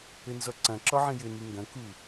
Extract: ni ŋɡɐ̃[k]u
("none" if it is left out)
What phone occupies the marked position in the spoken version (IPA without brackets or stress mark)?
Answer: k